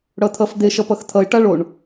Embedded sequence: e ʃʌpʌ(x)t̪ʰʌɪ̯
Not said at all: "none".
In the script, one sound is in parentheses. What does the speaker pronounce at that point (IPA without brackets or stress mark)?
x